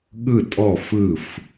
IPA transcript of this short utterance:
ɠ ɯ˦˨ tʼ ɔ˦˨ f ɯ˦˨ f

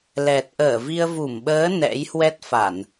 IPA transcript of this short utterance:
l ɛ˨˩ t̚ ʔ əː˧˩ v i˧ ə̯ v u˧˩ m ɓ əː˨˦ n ɛ̰˧˥ j h w ɛ˦˥ t̚ f a˧˩˨ n

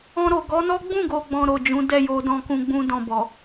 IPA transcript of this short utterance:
ɔ̃˧ ɾ o˨ ɡ ɔ˨˦ n ɔ˦ ɡ͡b ũ˦˨ ɡ o˨ ɡ͡b ɔ̃˨ ɾ o˨ d͡ʒ ũ˨˦ d ɛ˦˨ j o˨ d ɔ̃˨ k ũ˨ ɡ͡b ũ˧ d ɔ̃˨ b ɔ˨

